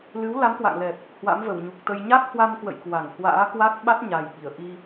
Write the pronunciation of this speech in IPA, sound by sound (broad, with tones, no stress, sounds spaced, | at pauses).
l ɨ˨˦ w l a˨˦ m k w a̰˧˨ ŋ l ɛ˨˩ p̚ | h w a̰˧˥ m v ə˧˩ w ɲ u˨˩ k̚ t̪ ə˧ j ɲ a˦˥ k̚ h w a˧ m k w ə̰˧˨ j k w a˧˩ ŋ h w a̰ː˧˥ k w a˦˥ k̚ ɓ a˦˥ t̚ ɲ a˨˩ j ɓ i˧˩ ə̯ ʔ i˧